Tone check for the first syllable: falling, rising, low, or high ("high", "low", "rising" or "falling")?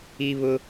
high